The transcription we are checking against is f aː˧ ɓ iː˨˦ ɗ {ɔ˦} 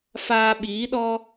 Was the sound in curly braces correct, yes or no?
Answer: yes